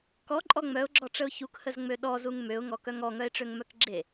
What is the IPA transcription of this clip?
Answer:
k ɔ ǃʼ ɔ ŋ͡m œ ʊ̯ ɡ͡ǁ ɔ ʈ͡ʂ ə ʊ̯ ç u k h ə z ŋ͡m ø ɗ ɔ z u ŋ m ø ʊ̯ ŋ ɔ k œ ŋ ɔ ŋ œ ɪ̯ ʈ͡ʂ ø ŋ m œ k ɡ͡ǁ e

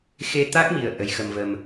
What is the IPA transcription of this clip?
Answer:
x e˧ t̪ a˦˥ k̚ m i˨˩ ə̯ ʔ ə˧˥ j x ə˧ m v ə˧ m

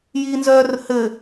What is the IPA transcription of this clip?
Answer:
j i n z œː r h ɘ

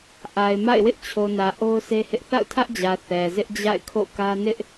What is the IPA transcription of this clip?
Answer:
ʔ a˨ ɪ̯ m a̰˦˨ ɪ̯ w ɪ˦ ʔ t͡ɕʰ o˨ n ä˨ ʔ o˦ ʊ̯ sʰ e˦ h ɪ˦ ʔ θ a̰˦˨ ʊ̯ tʰ ä˦ ʔ d͡ʑ ä˨ θ ɛ˨ z ɪ˦ ʔ d͡ʑ a̰˦˨ ɪ̯ kʰ o̰˦˨ k ä˦ n ɪ˦ ʔ

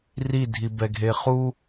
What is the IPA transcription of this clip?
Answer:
r i dʱ i b ɛ ɡʱ e χ u

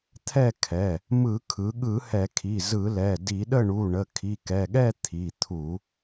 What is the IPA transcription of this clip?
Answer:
t̪ʰ ɛ˥˨ kʰ ɛ˩˧˩ | m ɯ˧˩˧ kʰ ɯ˩˧ ɠ ɯ˧˩˧ h ɛ˧˩˧ kʰ i˩˧˩ z ɯ˧˩˧ l ɛ˩˧˩ d i˧˩˧ ɗ ə˥˨ ɳ u˩˧˩ ɳ ə˩˧˩ kʰ i˩˧˩ k ɛ˩˧˩ ɠ ɛ˥˨ t̪ʰ i˩˧˩ t̪ʰ u˧˩˧

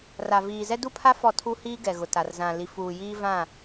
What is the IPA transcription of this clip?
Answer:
r a˨ v iː˨ z ɛ˦ d u˦˨ pʰ a˦ f ɔ˦˨ tʰ u˦ h iː˦ ɡ ɛ˨ ɣ ʊ˨ t a˨ r z ã˨ l i˨ f uː˨ j iː˦ v ã˦˨

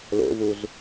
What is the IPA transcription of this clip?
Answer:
l o̰ v u z

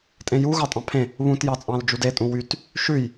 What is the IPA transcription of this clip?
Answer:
tʼ ẽ j u ɣ ɑ tʼ ɑ̃ pʰ ẽ | β ũ t j ɑ t͡sʼ ɑ̃ l d͡ʒ u d e tʼ ũ w y t | ʃ ʉ j

